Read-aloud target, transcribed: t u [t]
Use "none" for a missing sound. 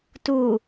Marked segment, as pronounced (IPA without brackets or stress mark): none